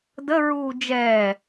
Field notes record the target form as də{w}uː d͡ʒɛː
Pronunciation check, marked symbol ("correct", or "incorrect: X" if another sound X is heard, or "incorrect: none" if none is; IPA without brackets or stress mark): incorrect: ɹ